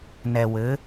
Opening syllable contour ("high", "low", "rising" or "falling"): low